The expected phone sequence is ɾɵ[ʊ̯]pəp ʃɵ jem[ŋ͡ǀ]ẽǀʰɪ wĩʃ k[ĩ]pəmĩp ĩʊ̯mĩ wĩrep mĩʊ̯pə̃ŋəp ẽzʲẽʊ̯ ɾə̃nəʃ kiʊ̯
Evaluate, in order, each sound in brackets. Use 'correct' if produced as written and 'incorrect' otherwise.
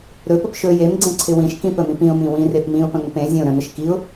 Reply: incorrect: none, incorrect: ɡ͡ǀ, correct

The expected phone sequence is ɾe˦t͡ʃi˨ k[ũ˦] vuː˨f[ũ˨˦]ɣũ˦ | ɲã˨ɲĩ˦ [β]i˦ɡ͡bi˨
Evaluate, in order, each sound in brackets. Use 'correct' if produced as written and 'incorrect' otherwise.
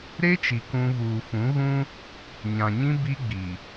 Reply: correct, correct, incorrect: b

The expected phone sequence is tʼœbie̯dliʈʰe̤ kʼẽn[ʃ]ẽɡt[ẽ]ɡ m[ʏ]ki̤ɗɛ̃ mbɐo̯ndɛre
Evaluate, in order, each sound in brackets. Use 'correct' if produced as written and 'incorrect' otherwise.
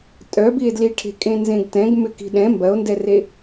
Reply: incorrect: z, incorrect: ɛ̃, correct

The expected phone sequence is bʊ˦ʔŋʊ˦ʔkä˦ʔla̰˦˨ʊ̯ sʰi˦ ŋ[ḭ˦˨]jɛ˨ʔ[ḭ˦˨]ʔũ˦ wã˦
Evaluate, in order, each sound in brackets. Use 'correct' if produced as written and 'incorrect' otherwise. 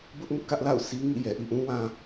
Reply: correct, correct

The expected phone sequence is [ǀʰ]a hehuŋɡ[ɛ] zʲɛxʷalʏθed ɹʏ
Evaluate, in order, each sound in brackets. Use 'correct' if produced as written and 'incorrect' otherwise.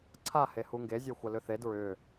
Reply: correct, incorrect: e

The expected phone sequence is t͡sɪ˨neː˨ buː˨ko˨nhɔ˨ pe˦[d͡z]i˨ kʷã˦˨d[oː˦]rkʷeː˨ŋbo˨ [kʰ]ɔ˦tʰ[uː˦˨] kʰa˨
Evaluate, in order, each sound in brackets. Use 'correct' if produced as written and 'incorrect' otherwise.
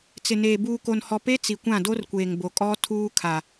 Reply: incorrect: t͡s, incorrect: o˦, incorrect: kʼ, incorrect: uː˦

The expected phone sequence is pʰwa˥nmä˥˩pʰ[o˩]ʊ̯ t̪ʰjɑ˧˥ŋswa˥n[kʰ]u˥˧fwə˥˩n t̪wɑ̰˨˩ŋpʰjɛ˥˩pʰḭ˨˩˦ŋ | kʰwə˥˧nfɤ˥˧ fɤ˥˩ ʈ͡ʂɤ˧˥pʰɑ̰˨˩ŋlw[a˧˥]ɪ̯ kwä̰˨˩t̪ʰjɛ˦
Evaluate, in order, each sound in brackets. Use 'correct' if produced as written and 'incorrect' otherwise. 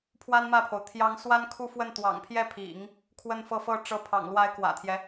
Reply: correct, correct, correct

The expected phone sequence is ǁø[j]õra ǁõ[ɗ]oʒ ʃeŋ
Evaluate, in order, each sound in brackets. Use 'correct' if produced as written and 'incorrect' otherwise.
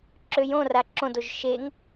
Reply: correct, incorrect: d

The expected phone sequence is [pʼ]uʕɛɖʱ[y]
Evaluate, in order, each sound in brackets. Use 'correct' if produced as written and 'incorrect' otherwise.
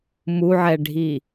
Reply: incorrect: m, incorrect: i

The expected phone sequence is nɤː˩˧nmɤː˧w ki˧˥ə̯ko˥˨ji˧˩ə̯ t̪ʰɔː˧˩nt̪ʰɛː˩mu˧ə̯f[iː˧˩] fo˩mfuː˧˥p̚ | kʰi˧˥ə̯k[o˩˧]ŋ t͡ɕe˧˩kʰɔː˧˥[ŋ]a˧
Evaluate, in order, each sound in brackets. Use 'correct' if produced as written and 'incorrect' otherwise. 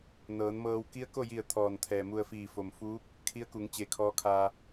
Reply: correct, incorrect: u˩˧, incorrect: kʰ

